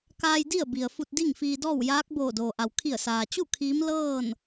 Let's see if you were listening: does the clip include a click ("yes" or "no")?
no